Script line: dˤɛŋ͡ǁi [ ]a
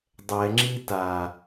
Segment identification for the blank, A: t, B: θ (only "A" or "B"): A